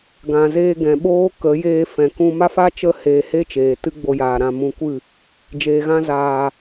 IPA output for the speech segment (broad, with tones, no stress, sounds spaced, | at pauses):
ɡ ã˨ z eː˧ ɡ ɛ̃˨ ɓ oː˦ k ə˨˦ j eː˧ f ɛ̃˨ k ũ˧ m a˦ f a˦ t͡ʃ ə˦ h eː˧ h e˦ t͡ʃ eː˨ t ɨ˦ ɡ͡b o˧ j aː˨ ɾ ã˧ m ũ˧ kʷ ɨ˦˨ | d͡ʒ eː˨ ɣ ã˧ z aː˨